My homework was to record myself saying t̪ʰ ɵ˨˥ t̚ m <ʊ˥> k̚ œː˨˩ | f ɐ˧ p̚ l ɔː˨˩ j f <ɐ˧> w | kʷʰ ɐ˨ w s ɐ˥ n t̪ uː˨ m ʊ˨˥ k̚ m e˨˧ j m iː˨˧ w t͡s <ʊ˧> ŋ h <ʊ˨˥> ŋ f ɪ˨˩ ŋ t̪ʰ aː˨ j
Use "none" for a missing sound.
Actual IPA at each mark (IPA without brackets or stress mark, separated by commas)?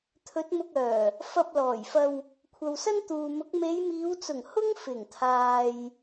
ʊ˧, ɐ˧, ʊ˨˩, ʊ˥